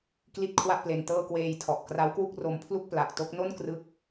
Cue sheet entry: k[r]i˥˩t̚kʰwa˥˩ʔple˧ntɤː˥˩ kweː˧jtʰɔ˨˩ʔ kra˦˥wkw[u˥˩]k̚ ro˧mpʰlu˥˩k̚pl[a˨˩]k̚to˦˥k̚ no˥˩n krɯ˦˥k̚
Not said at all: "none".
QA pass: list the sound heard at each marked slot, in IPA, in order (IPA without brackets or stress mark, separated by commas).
l, u˥˩, a˨˩